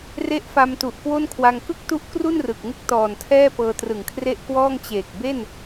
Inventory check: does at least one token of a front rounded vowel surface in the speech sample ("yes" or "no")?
no